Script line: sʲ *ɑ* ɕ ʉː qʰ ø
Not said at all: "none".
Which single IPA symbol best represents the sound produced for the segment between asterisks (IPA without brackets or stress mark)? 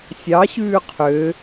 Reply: ɑ